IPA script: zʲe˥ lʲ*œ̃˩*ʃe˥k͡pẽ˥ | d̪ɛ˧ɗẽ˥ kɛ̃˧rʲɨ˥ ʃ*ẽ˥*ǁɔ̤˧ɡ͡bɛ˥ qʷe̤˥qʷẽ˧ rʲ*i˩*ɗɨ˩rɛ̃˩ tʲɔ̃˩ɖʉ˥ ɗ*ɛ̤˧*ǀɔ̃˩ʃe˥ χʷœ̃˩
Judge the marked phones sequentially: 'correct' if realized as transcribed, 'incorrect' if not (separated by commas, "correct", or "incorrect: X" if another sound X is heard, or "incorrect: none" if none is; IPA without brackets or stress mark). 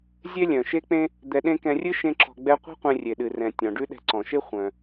correct, correct, incorrect: e˩, correct